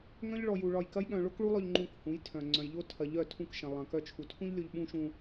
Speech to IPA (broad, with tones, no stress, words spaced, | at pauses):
ŋœ̃˦ʎ ɭɔ˧ju˧ ɭɒ˧jkɐ˦jɠœ̃˧ ɭo˦kɭu˦lˠœ˧ʎ ŋ͡ǃũ˧khũ˨˦jtʰœ̃˨ ŋ͡ǀœ̃˨jʎo˧tʰɐ˨ ʎœ˦˨tʰũ˦˨kʃɐ̃˨ lˠɐ̃˨kœ˧ t͡ʃʰu˨tʰũ˦ʎlʲo˧ʎ ɓũ˦ʃũ˧